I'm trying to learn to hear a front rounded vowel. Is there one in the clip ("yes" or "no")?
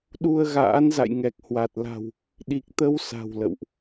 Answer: no